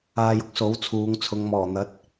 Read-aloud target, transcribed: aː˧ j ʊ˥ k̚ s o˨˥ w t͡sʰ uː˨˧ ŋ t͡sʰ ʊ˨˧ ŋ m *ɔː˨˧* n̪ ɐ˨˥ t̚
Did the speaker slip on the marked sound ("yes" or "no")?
yes